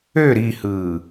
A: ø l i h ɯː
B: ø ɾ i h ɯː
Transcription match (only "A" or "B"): B